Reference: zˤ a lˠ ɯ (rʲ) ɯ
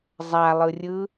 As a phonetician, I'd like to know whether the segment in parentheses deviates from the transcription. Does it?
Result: no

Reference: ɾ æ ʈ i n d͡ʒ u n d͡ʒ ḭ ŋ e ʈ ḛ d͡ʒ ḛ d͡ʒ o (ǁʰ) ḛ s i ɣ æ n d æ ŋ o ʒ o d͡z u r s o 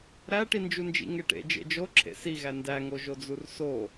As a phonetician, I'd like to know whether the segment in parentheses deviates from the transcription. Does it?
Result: no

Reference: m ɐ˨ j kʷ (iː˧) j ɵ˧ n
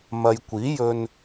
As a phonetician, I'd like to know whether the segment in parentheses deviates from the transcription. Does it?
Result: yes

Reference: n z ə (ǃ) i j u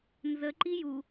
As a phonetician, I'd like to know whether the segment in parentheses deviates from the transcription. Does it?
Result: no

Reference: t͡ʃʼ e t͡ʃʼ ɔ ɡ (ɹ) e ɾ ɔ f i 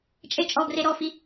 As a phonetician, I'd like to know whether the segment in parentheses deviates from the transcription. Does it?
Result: yes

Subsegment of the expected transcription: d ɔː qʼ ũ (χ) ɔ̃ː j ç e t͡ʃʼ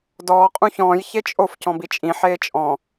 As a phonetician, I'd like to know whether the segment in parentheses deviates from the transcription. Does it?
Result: yes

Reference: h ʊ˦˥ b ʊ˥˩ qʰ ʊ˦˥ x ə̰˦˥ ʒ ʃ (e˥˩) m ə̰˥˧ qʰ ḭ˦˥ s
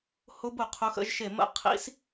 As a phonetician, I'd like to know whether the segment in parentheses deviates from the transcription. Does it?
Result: no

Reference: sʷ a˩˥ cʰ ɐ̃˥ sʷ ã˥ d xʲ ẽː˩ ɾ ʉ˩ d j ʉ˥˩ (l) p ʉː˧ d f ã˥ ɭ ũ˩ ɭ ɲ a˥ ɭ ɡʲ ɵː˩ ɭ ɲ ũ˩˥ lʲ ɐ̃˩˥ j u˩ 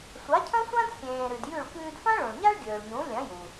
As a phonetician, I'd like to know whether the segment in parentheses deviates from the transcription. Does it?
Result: yes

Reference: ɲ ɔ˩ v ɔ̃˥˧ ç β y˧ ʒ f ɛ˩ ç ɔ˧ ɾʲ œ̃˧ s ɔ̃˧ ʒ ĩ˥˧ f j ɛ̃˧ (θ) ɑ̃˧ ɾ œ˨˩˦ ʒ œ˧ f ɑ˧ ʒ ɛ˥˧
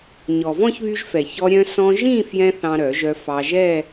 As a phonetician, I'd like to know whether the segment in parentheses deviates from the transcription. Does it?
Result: no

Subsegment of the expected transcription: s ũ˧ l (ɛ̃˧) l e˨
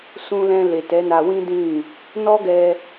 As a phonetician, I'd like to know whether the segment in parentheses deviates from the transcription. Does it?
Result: no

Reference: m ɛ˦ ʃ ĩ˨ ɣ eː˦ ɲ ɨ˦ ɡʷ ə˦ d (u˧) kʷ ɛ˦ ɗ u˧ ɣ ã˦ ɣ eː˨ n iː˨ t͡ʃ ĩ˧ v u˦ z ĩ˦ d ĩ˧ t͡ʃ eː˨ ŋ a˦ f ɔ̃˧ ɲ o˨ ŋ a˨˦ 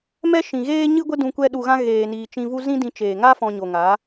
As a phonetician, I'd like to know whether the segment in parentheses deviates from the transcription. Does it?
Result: yes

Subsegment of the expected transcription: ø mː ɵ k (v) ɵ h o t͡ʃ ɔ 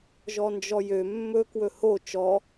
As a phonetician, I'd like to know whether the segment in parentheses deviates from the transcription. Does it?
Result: yes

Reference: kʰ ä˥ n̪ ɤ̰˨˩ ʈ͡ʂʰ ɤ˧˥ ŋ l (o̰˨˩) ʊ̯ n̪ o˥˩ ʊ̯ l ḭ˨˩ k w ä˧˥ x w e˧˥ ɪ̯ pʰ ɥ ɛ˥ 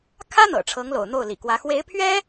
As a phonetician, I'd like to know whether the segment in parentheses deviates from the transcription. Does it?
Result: no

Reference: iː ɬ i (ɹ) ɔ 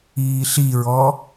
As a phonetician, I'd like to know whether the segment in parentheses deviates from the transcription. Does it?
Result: no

